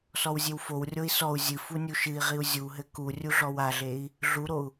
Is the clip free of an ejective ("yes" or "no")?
yes